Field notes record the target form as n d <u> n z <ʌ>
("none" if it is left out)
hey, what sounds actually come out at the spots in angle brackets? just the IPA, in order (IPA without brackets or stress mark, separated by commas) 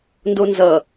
o, ʌ